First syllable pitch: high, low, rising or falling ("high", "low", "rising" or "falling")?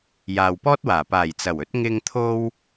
low